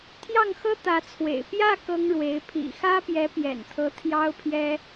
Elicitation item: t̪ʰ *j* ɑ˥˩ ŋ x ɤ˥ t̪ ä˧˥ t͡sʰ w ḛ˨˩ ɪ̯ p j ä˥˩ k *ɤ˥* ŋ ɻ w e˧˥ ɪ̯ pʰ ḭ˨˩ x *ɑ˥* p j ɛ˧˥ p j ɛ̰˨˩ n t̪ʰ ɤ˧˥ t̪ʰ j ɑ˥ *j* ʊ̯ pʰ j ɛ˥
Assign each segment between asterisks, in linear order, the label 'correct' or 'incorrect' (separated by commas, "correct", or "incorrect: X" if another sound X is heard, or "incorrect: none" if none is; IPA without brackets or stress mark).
correct, correct, incorrect: ä˥, incorrect: none